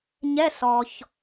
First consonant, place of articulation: palatal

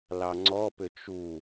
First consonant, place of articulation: alveolar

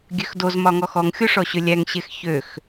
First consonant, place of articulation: velar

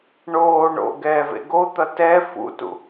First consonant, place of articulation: retroflex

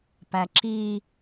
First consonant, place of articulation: labial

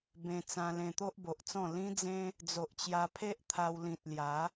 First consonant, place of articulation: labial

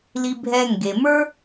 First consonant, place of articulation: alveolar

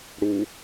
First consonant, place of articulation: retroflex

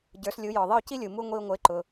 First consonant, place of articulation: palatal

